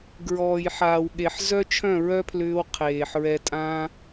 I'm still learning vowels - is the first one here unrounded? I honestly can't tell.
no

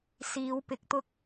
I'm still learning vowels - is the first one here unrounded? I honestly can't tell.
yes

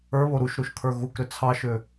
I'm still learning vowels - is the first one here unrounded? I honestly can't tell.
yes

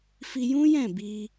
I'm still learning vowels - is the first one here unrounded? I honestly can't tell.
yes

